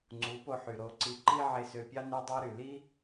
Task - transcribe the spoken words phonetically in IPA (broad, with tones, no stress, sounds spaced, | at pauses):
ŋ͡ǀ u˨˦ p o˧ ħ y˨ ɾ o˧ ǀ i˧ ǃ i˦ ʕ e˧ s ø˧ pʲ ɑ˦ n ø˦ dˤ ɑ˦ ɾ y˨ l i˦